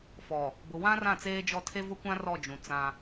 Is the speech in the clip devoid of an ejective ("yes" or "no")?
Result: yes